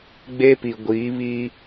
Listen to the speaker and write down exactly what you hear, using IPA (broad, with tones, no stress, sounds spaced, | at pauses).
ɡ͡b e˦ p i˨ ɡʷ iː˨˦ β i˦